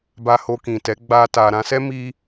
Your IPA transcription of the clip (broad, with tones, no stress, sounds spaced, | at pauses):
b a˧ h o˧ k ĩ˨ t ɛ˨˦ ɡ͡b a˧ t a˨ ɾ ã˧ s ɛ˦ m i˧